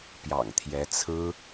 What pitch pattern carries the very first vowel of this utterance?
low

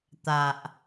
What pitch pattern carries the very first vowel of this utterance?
low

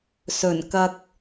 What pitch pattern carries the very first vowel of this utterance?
low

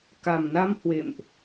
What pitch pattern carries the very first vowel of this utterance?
low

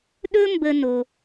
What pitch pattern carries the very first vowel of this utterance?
high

